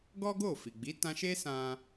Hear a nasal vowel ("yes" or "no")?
yes